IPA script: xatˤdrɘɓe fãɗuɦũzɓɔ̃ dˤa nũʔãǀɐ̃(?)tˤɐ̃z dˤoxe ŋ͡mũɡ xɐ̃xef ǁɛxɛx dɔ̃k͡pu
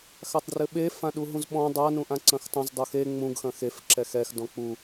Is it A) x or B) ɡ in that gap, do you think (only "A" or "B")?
A